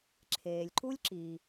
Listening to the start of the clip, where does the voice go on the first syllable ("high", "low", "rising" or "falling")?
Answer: low